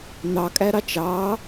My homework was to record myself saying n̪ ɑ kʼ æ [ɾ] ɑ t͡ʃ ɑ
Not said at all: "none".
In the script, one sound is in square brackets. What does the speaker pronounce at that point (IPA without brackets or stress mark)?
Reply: ɾ